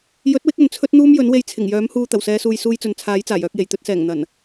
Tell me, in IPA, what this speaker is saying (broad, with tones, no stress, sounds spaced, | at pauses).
j ɵ˨˥ t̚ w ɪ˨˥ k̚ ɵ˨ n t͡sʰ ɵ˥ t̚ n̪ uː˥ m j ɵ˨˥ n w e˧ j t͡sʰ ɪ˨˩ ŋ j œː˨˥ m h uː˧ t̪ ɐ˨˩ w s ɛː˨˧ s uː˨ j s uː˧ j t͡s ɵ˨ n t͡sʰ aː˨˥ j t͡s aː˨˩ j œː˧ k̚ j e˨˩ j t̪ ɵ˧ t̚ s ɛː˨˩ ŋ n̪ ɐ˨˩ n